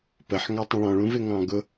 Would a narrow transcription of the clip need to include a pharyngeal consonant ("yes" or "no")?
yes